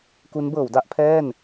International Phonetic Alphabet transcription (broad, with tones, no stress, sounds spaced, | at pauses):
k u˦˥ n b ɤː˩˦ w d a˥˩ ʔ pʰ ɛː˥˩ n